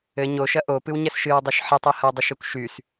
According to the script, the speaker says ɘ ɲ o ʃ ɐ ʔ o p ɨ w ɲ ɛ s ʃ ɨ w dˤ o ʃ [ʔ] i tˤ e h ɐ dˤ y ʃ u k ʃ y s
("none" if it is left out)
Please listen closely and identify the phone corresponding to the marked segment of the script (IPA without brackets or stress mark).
ħ